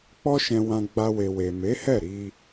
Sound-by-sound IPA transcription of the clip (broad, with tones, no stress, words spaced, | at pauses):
k͡pɔ˦ʃɛ̃˧wã˧ ɡ͡ba˧we˨we˨ me˨˦hɛ˦˨ ɾi˧